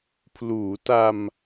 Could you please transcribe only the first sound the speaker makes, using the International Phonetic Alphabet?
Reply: pʰ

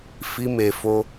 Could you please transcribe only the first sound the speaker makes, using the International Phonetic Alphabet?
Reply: f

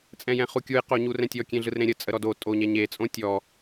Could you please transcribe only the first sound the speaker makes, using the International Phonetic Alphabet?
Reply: t͡sʼ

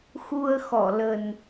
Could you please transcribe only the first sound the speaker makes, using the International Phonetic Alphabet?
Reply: x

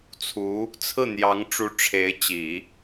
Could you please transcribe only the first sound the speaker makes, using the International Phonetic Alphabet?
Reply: t͡sʰ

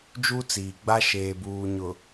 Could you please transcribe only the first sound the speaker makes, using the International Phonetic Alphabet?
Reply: d͡ʒ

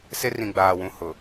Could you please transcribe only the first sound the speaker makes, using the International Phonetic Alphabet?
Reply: s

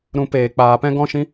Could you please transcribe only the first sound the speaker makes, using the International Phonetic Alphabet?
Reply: ɾ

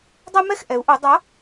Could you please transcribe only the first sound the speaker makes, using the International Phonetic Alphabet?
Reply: dˤ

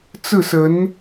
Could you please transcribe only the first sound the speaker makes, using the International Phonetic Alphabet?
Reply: t͡s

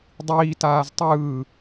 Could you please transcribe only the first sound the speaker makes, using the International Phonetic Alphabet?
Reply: dˤ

